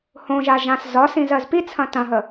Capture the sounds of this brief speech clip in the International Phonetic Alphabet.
h õ ʒ a ʒ ã s z ɒ s ĩ z ɜ z p i t͡sʰ ɐ̃ t ɐ̃ ɦ ə

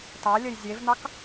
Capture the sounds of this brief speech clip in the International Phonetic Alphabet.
t ɑ lʲ ə j zʲ e v n̪ ɑ k

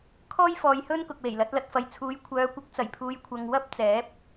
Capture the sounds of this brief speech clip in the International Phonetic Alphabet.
kʰ ɔː˥ j f ɔː˨ j h ɵ˥ n k ʊ˨ k̚ w e˨˩ j l ɐ˨˥ t̚ l ɐ˨ t̚ f ɐ˨ j t͡sʰ uː˨˥ j kʷʰ œː˨˧ kʷ ɪ˨˥ k̚ t͡s ɐ˨˩ j pʰ uː˨˧ j kʷʰ ɐ˧ ŋ w ɐ˥ p̚ t͡s ɛː˨˥ p̚

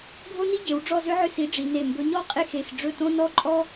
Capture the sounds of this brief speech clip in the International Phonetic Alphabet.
ɡʱ o˥ n i˥ ɟ e˩˧ w ɖ͡ʐ ɔ˥˧ z ʏ˥ ʕ ʏ˥˩ s i˨˥ ɖ͡ʐ i˩˧ n e˧˩ m b ɵ˨˥ ɲ ɔ˥˧ qʼ e˥˩ x e˧˩ x ɖ͡ʐ ɵ˥˩ t õ˥ n ɔ˥ ǃʼ ɔ˥

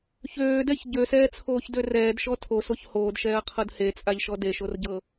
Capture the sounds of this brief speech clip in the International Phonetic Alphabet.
ç øː d ɛ ç ɟ ø s ɛː t͡sʰ oː ç d ø r ɛː d ʃ ɔ tʰ o s o ç h oː d ʃ ɛː ɐ̯ qʰ ɤ d h e t͡sʼ a ʎ ʃ ɔ d e ʃ o r ɟ ɤ

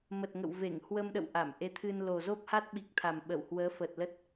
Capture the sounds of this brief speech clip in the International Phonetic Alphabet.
m ə˨˩ t̚ ŋ ə̰˧˨ w v e˧˩ ŋ h w ə˧ m ɗ ə̰˧˨ w ʔ a˧˩ m ʔ e˨˦ t̪ʰ ɨ˧ n l o˨˩ z o˦˥ p̚ h a˦˥ t̚ ɓ i˨˩ k̚ t̪ʰ a˨˩ m ɓ ə˧˩ w h w əː˨˦ f ə˨˩ t̚ l ə˦˥ t̚

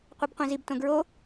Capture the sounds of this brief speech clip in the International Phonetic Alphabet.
qʷ i b qʷ ĩ z i b t õ ɡ ɹ o

